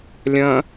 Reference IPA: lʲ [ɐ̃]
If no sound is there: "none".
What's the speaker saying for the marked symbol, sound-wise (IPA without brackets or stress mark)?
ɐ̃